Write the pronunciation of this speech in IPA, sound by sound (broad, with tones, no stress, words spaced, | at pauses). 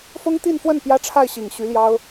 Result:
fʊ˥ŋt̪i˥˧nfwə˥˩n pjä˥ʈ͡ʂʰa˥˩ɪ̯ɕi˨˩ŋ ɕy˧˥ljɑ˥ʊ̯